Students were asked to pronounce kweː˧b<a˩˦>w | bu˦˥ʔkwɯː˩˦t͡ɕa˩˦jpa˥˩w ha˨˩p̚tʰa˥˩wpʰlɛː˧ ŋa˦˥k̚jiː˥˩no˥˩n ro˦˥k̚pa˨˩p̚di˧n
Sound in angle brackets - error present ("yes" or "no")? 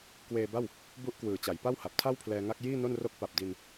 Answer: yes